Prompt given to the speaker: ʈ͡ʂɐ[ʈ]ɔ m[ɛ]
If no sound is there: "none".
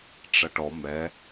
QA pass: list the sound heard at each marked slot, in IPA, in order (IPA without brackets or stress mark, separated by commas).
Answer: ʈ, ɛ